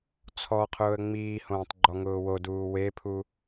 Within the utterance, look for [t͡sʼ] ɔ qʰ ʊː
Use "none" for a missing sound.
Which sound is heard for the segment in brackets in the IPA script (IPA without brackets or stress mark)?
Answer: t͡sʰ